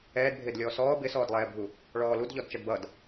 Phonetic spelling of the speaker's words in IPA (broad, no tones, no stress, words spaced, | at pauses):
ɛːdbʱɪːd lʲɔːsɔː bɪsɔːdlˠɛːbʱu | ɭɔːludʎɔd t͡ʃʌdbʌd